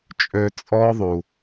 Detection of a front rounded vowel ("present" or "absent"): present